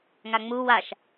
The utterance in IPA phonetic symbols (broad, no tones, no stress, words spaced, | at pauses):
ŋaŋ͡mu waʃ